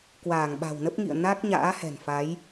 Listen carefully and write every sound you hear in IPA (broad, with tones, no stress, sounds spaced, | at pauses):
k w aː˧˩ ŋ ɓ a̤˨˩ w n ə˦˥ p̚ ŋ ḭ˧˨ ə̯ n a˦˥ k̚ ɲ a̰ː˧˥ h ɛ̤˨˩ n f a˨˦ j